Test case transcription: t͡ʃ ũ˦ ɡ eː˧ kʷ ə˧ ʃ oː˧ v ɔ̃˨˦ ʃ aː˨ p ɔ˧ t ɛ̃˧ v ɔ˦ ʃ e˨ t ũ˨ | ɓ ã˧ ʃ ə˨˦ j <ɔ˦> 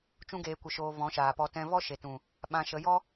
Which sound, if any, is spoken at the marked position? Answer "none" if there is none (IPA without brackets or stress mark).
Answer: ɔ˦